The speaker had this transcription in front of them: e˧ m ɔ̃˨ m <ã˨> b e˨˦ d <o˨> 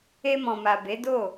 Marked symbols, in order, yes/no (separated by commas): no, no